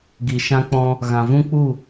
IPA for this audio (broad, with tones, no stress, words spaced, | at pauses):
ɡi˨ʃã˧k͡pɔ̃˧ | ɣã˨vũ˦k͡pu˦˨